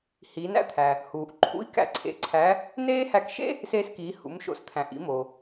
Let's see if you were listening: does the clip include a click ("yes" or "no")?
yes